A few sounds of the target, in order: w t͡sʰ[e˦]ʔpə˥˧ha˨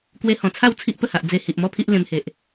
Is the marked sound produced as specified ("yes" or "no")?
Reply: no